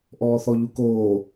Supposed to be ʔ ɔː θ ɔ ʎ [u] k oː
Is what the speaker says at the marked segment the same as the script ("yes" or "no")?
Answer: yes